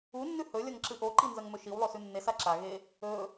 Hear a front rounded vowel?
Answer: no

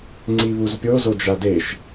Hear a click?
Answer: yes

